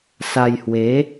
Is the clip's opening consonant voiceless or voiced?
voiceless